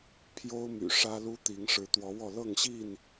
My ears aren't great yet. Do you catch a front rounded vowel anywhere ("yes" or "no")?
yes